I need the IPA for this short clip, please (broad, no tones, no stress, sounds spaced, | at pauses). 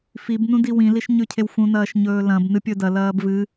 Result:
f i b n ũ d i w ĩ l i ʃ ɲ ʉ cʰ e w f ũ n ɐː ʃ ɲ ɵː l ɐ̃ b n ɨ pʲ ɵ d ɐ l ɐː b v ɨ